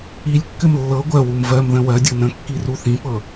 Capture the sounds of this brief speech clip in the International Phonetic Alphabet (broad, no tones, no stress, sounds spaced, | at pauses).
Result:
i lʲ kː ɘ m lː ɤ ɡʷ ɜ w u m v ɜ m ð ə̃ w ɜ dʲ ɤ n ə̃ kː i r u θ ĩ p ɤ